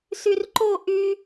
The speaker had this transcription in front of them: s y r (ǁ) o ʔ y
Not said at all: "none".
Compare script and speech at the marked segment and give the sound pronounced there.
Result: ǃ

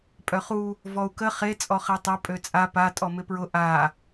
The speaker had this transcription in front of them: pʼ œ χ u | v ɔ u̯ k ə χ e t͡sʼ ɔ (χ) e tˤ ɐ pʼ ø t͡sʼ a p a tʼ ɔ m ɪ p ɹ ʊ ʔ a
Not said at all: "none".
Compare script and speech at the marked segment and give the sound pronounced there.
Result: χ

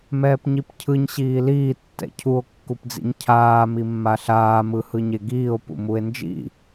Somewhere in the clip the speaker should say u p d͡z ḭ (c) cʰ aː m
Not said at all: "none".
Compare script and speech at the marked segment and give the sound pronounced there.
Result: ɲ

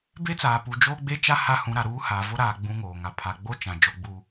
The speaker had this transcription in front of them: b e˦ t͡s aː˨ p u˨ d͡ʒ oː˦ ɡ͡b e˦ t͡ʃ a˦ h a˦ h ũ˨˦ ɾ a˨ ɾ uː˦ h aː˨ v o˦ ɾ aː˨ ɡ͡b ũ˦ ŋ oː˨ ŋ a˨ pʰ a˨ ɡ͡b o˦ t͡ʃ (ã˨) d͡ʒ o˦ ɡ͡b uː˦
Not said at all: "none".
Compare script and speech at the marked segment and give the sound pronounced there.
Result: ã˨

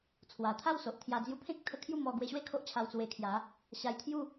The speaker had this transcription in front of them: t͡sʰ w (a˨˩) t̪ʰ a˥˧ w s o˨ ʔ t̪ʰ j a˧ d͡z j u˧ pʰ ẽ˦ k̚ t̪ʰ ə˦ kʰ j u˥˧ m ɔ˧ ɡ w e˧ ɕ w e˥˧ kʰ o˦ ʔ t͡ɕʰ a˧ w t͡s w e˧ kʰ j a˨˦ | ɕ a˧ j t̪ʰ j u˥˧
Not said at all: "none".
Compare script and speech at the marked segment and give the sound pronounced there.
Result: a˨˩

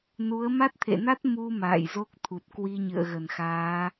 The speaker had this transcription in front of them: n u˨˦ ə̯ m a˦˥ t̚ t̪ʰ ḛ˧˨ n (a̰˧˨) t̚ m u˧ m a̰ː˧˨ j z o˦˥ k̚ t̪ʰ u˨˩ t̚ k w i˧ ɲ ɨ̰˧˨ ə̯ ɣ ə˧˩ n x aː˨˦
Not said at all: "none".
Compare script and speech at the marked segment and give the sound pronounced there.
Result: a˦˥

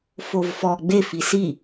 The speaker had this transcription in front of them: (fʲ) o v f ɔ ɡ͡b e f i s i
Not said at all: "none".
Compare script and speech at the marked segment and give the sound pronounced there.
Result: f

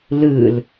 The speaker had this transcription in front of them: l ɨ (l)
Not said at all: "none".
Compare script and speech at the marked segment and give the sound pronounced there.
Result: l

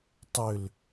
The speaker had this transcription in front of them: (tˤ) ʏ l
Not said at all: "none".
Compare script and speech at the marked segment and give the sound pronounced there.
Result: tˤ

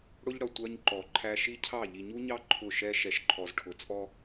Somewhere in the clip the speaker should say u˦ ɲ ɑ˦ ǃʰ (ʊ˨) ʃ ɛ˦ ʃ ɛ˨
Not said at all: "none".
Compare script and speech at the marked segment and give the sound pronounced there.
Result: ʊ˦˨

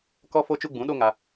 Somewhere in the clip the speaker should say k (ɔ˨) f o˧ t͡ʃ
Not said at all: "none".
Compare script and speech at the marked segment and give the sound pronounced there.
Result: ɔ˧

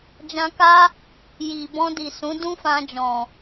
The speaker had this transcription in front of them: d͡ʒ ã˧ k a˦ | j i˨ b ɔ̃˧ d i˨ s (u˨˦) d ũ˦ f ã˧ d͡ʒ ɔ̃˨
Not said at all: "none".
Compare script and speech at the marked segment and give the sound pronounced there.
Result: ũ˨˦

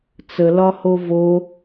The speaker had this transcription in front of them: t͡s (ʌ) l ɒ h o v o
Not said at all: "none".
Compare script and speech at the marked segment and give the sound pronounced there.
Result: ə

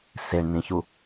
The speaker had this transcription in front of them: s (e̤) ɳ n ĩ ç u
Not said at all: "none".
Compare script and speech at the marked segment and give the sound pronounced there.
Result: e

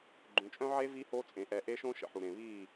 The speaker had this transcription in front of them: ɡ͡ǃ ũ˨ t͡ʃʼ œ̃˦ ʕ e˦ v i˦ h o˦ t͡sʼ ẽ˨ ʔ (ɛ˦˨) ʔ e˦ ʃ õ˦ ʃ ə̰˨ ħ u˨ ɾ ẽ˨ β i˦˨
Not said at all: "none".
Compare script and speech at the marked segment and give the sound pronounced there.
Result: ɛ˨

